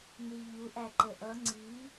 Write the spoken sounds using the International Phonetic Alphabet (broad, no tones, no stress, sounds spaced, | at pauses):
n i ʎ u ʔ æ ǃ ə ʔ ʌ ŋ͡ǀ i